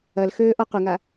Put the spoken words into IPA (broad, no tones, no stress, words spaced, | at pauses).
ɐlxøː ʔɔqʷəŋa